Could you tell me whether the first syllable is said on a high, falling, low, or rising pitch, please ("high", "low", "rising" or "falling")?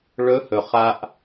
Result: rising